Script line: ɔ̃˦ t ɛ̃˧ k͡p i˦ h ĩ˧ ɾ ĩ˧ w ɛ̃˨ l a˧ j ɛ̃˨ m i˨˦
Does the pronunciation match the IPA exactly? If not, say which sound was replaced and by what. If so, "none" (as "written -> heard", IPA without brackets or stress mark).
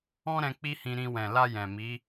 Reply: t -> ɾ